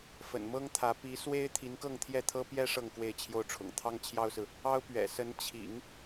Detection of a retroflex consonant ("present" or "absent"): present